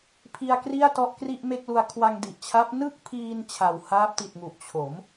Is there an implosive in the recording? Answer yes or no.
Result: no